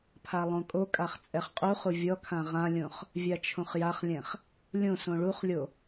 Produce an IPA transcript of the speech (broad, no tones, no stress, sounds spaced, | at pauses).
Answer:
pʰ a lˠ õ kʼ o kʼ a χ t͡sʼ ɛ χ qʼ u χ u vʲ ɔ kʰ ã ʁ ã lʲ õ χ | vʲ a t͡ʃʰ õ χ j a χ lʲ ɛ̃ χ | lʲ õ s õ ɭ u χ lʲ o